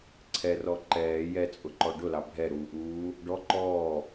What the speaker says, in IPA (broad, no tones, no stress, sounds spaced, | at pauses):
ǀʰ ɛ r ɔ ǃ ɛː j ɛ t͡sʼ ʊ ǃ ɔ ɖ ʊ l ɑ bʱ ɛ ɾ uː ʔ uː | ɖ ɔ ǃ ɔː